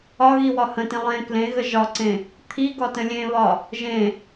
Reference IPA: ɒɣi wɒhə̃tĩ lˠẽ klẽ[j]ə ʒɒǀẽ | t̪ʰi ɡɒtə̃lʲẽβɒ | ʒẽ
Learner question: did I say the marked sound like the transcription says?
no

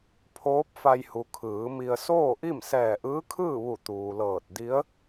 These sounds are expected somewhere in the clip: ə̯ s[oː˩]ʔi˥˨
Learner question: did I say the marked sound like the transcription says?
no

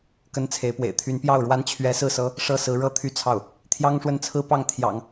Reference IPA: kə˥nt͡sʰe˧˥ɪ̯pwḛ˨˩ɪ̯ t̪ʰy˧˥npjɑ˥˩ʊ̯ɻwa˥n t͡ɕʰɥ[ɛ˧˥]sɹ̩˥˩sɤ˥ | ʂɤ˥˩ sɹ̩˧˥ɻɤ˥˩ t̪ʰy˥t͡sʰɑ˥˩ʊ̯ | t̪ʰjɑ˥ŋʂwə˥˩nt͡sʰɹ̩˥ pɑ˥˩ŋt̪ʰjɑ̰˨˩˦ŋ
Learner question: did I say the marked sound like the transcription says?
yes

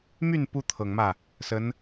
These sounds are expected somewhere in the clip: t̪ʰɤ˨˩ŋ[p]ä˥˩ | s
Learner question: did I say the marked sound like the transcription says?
no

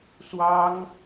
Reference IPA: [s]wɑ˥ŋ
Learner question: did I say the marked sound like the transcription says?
yes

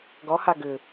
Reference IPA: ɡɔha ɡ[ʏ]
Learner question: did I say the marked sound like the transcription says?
yes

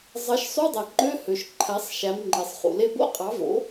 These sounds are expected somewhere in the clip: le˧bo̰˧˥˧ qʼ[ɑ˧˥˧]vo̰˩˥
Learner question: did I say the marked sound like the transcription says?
no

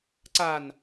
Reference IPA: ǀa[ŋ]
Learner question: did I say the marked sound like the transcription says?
no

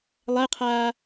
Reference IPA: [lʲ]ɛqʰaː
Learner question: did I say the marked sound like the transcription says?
no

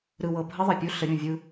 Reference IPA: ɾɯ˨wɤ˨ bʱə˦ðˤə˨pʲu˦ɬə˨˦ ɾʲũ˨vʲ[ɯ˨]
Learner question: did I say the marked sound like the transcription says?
no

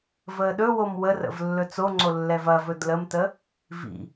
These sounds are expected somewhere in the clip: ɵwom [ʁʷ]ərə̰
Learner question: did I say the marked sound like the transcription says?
no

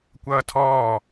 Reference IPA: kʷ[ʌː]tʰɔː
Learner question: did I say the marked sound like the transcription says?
yes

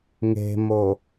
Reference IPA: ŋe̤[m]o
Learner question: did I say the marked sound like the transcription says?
yes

